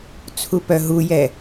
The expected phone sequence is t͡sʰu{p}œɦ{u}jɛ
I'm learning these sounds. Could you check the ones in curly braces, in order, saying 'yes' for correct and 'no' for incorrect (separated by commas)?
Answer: yes, yes